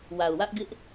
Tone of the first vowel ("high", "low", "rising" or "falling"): low